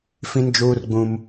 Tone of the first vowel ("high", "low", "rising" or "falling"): high